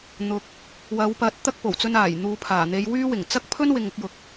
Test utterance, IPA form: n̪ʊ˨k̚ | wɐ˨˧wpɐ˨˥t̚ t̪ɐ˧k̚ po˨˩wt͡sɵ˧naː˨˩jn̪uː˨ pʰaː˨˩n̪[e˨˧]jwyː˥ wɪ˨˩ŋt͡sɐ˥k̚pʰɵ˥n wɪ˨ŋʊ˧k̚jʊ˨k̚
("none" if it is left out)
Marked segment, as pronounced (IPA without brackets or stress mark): e˨˧